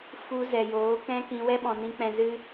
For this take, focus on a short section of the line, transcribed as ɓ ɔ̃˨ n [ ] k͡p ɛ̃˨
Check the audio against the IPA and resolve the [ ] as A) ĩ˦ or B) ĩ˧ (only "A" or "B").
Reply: B